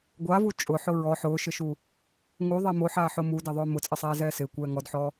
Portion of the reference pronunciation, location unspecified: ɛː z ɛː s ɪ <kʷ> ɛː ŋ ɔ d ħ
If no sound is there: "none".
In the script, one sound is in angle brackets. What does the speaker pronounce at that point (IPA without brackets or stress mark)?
kʷ